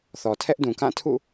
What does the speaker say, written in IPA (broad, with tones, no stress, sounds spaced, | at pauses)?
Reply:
θ ɔ˨ tʰ ɛ˦ ʔ d ũ˨ k ã˦˨ tʰ ṵ˦˨